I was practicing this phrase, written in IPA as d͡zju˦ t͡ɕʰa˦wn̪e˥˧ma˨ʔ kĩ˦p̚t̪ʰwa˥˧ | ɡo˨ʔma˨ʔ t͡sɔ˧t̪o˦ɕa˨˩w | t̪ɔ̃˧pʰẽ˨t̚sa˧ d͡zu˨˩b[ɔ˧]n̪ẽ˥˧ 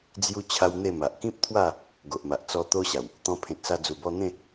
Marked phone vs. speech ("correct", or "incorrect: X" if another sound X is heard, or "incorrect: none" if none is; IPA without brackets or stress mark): correct